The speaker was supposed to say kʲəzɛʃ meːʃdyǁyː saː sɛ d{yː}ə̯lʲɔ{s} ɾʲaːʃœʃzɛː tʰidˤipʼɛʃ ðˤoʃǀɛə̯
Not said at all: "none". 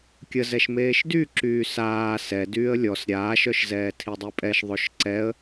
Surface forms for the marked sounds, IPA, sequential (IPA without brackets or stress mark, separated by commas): yː, s